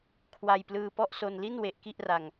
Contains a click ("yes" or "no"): no